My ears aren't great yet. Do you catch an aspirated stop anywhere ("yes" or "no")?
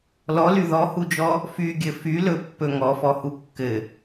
no